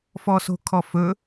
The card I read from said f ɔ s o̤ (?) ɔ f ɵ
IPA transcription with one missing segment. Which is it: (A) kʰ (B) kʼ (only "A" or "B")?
A